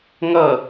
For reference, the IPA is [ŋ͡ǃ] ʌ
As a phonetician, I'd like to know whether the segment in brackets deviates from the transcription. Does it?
yes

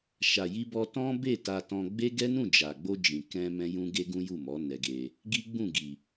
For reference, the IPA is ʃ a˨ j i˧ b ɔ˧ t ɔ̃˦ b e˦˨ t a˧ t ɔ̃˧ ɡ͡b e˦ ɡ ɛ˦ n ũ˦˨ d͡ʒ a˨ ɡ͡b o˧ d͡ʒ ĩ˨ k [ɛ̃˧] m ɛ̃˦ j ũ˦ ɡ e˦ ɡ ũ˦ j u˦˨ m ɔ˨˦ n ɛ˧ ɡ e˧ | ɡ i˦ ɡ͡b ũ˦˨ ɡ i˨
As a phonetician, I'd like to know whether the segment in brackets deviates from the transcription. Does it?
no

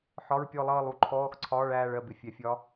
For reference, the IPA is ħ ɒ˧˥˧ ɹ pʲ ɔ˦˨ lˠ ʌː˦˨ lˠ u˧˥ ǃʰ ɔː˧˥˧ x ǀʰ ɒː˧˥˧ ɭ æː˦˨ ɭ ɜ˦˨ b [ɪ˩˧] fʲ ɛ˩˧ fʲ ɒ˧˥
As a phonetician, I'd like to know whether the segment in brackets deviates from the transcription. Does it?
no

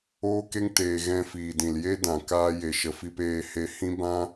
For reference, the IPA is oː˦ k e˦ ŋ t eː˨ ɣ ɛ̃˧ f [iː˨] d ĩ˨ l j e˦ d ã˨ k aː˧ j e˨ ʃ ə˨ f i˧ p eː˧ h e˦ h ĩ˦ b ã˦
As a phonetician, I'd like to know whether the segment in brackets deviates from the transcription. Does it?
no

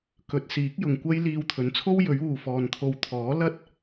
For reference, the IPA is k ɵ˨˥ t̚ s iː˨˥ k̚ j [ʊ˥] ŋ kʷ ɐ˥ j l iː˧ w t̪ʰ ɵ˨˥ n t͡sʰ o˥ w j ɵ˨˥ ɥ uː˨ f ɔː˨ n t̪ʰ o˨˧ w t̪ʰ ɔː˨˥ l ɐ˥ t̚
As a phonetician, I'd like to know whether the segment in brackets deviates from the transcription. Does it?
yes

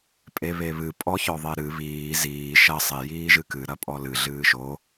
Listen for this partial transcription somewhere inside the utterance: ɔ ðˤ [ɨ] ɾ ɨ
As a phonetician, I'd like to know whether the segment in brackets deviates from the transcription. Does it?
yes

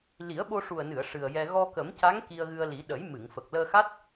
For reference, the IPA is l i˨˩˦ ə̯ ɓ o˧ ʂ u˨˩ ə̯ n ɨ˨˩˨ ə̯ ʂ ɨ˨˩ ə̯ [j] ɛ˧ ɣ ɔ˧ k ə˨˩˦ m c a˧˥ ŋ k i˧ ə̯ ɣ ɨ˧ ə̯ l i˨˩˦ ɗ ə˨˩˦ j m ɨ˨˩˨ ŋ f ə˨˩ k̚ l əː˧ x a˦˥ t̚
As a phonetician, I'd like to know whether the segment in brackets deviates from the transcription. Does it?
no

